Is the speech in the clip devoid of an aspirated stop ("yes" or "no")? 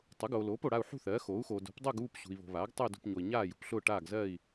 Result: yes